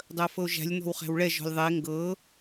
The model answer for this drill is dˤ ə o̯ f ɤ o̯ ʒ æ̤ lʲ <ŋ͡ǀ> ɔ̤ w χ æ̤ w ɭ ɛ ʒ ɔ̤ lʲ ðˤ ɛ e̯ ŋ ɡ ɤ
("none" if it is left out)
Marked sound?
n̪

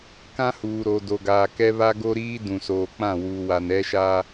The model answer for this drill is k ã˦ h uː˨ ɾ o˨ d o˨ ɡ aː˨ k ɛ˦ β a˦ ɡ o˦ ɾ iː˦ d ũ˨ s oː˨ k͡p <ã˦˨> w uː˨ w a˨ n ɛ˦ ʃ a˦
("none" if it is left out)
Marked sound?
ã˦˨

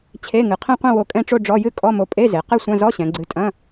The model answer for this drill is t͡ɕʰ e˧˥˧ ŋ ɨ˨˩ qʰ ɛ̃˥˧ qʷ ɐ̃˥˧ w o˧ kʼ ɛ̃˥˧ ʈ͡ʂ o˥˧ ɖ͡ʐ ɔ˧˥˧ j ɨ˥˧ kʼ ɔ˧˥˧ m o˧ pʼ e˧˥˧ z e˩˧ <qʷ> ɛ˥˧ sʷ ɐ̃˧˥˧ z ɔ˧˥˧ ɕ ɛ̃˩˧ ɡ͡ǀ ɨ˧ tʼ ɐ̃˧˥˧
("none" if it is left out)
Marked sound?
q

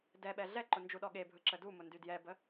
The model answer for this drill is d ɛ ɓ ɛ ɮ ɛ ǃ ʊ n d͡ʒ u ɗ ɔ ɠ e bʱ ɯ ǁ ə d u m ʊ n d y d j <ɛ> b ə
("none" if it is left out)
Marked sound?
ɛ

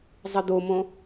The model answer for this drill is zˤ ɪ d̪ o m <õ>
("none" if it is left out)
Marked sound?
õ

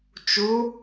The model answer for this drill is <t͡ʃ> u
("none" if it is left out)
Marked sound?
t͡ʃ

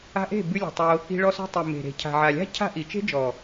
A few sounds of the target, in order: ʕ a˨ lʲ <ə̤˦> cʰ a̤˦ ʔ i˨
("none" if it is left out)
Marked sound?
a̤˦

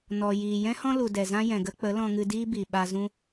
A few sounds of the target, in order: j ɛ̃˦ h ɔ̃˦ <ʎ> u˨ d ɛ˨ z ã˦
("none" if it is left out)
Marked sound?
l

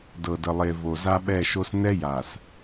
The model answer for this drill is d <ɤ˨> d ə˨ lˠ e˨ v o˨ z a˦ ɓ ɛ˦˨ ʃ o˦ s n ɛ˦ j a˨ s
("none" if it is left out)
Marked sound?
ɤ˨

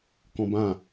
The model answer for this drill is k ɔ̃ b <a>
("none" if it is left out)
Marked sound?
ã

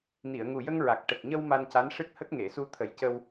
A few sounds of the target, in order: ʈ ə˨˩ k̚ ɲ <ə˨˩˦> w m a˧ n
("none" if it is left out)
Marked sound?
ə˧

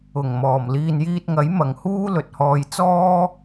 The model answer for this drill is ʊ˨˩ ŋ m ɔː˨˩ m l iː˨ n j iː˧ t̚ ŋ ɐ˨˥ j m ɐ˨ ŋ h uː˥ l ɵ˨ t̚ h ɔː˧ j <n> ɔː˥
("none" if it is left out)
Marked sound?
t͡s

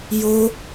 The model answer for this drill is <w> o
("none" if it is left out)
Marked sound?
j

